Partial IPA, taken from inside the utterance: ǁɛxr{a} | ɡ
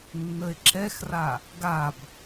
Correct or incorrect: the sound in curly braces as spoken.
correct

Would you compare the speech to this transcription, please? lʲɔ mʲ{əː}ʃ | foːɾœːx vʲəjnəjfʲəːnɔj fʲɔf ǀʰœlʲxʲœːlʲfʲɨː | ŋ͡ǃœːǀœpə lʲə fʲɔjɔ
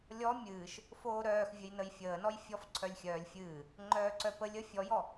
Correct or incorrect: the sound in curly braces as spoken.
incorrect: ɨː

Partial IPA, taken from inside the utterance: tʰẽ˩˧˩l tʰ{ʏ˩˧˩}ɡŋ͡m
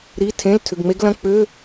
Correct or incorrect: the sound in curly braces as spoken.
correct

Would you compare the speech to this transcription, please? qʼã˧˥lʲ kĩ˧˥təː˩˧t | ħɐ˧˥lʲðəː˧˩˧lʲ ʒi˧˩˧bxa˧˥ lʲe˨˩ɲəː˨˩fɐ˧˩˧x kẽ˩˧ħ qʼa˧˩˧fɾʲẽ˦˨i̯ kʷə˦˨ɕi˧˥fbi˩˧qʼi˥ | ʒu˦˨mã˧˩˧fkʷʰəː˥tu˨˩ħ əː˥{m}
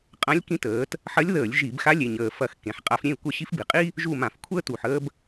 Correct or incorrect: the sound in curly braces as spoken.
incorrect: b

